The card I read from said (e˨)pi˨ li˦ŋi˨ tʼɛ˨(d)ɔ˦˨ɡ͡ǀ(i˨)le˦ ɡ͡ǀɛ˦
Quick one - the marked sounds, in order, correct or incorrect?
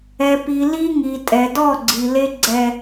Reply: incorrect: ɛ˨, correct, correct

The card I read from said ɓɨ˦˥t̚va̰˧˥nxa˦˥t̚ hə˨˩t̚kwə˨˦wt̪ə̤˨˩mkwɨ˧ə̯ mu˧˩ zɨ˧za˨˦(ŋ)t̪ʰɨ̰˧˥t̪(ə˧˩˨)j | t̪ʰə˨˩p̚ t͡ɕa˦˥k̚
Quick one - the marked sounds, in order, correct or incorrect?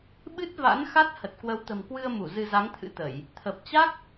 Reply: correct, correct

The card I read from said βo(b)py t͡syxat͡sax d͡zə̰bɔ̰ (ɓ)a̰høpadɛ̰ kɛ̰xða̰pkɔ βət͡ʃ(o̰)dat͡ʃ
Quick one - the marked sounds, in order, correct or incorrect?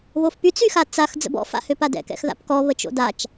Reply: incorrect: f, incorrect: f, correct

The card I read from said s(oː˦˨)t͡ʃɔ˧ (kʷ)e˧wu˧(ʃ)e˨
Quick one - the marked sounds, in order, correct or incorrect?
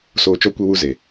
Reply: incorrect: oː˨, correct, incorrect: z

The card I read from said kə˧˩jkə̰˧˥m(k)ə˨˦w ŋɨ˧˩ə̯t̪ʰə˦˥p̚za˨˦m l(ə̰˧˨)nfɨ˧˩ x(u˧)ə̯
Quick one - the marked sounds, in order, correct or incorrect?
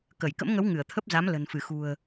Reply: incorrect: ŋ, incorrect: ə̤˨˩, incorrect: ṳ˨˩

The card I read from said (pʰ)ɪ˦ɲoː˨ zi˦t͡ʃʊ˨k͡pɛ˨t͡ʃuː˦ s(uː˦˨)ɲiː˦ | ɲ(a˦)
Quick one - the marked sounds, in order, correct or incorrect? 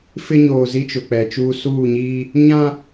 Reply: incorrect: f, correct, incorrect: ã˦

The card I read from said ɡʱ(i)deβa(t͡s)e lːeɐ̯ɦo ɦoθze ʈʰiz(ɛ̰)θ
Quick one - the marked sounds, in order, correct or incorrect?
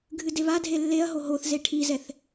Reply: incorrect: ɨ, incorrect: dʱ, incorrect: ɛ

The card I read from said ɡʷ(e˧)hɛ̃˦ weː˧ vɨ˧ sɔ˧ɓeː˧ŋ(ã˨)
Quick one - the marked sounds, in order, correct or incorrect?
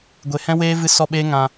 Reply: incorrect: e˨, correct

